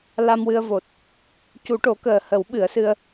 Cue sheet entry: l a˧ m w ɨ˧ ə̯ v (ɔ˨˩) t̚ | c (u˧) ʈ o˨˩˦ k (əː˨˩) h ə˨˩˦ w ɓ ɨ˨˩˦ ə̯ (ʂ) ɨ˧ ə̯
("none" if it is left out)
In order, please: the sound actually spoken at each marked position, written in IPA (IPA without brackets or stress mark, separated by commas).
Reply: o˨˩, u˨˩˦, əː˨˩, s